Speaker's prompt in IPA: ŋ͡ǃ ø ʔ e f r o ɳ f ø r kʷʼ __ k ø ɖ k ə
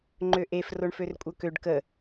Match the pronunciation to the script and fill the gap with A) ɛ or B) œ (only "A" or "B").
B